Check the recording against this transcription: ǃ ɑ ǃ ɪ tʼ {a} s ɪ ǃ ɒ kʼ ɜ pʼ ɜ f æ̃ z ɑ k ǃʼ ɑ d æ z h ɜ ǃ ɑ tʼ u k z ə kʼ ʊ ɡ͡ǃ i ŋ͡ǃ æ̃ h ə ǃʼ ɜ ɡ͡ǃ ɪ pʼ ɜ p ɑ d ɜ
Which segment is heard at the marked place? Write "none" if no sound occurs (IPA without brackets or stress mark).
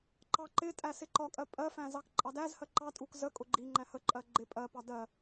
æ